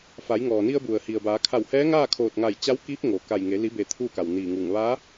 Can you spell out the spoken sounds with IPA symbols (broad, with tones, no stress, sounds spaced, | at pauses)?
f a˩˧ j ŋ ɔː˩ n i˧ ə̯ b u˩ ə̯ h i˩ ə̯ b aː˩˧ kʰ a˧˩ w h ɛː˧˥ ŋ aː˥˨ kʰ oː˧˩ t̚ ŋ a˧˩ j t͡ɕ a˧˥ w k iː˧˥ p̚ ŋ oː˩ k a˧˩ j ŋ e˩˧ l i˩˧ b e˩ t̪ʰ uː˥˨ k a˩ w n iː˧˩ ŋ uː˧˩ ŋ ʋ aː˧˥